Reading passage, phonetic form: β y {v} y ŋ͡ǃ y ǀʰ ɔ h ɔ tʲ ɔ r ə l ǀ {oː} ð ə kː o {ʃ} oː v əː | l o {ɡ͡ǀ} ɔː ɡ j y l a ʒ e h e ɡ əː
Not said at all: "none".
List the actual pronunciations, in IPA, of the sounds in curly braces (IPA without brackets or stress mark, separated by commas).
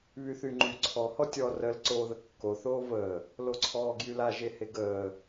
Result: θ, oː, θ, ǀʰ